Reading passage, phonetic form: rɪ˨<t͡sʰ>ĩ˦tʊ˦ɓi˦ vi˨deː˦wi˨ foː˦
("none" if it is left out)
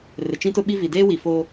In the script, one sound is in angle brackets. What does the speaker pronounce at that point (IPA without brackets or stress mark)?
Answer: t͡ʃ